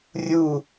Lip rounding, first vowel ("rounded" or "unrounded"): rounded